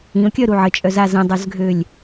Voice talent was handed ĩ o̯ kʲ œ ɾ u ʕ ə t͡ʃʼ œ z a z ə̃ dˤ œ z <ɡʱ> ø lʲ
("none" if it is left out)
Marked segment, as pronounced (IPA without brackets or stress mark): ɡʱ